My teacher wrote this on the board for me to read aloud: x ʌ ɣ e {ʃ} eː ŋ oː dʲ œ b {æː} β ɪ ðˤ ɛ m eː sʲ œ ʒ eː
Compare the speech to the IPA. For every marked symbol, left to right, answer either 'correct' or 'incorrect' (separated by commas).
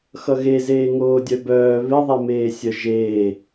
incorrect, incorrect